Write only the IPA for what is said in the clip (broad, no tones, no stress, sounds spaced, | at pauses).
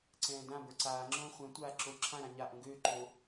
ǀ ɛ̃ː d ã b ə˞ ǀ aː ŋ͡ǁ õː χʷ ɛ̃ tʷ aː ǁ o ǁʰ ã ɾ ã ɲ a ʔ õ ɡ øː ǃ o